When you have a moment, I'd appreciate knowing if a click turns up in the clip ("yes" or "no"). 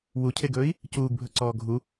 yes